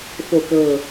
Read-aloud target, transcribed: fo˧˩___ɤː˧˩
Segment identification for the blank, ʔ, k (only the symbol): k